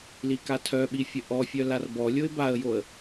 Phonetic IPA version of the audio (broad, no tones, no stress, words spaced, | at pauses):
likatʰœɓi fʲəʔɔfʲœ larbɔlʲoɪ̯ baə̯joə̯